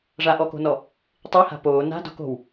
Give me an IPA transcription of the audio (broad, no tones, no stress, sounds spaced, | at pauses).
ʐ a ʔ ɔ k o̤ n ɔ | tˤ i h a̤ p oː n a̤ d o̤ k o̤ w